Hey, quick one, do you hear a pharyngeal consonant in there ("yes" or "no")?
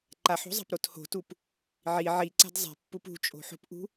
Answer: yes